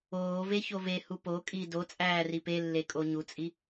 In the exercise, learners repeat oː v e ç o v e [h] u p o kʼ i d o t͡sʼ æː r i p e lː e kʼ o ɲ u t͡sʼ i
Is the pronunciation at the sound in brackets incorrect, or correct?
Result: correct